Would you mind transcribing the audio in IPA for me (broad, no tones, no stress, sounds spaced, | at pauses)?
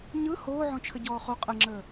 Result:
ɲ ɯ h oː ʕ õ t͡ʃʰ ə ɟ ɔː χ o qʼ ə ŋ͡ǁ əː